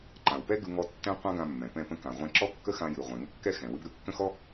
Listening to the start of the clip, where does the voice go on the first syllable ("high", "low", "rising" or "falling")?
low